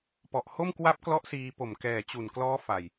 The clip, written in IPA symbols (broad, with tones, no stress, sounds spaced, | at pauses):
p ɔ˨˩ ʔ h o˥˩ m k w a˦˥ p̚ k l ɔ˦˥ ʔ s iː˧ p o˨˩ m k ɛː˨˩ t͡ɕ u˨˩ n k l ɔː˦˥ f a˧ j